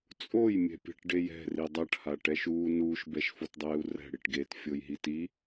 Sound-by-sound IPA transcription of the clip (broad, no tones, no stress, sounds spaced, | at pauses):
t͡sʼ o j mʲ ɛ̤ pʲ ɛ̤ ʈ ɖ e j ɛ̤ r i dˤ a ʈ h a ʈ ɛ ʃ uː n uː ʃ b ɛ ʃ f o t dˤ eː u̯ r ɛ̤ ɽ i ʈ ɡ eː t fʲ o j ɦ i t i